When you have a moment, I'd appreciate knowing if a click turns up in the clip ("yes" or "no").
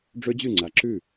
yes